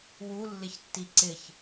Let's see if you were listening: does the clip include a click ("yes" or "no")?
yes